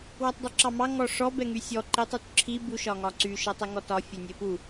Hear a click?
yes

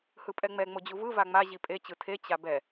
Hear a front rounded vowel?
no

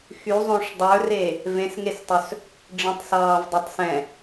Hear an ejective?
no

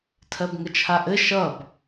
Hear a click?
no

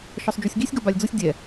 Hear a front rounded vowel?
no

